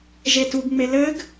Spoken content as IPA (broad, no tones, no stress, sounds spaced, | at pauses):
ʒ e t u ɡ ŋ͡m e l ɘ ɡ